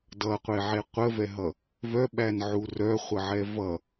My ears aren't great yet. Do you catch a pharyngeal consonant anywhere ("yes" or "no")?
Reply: yes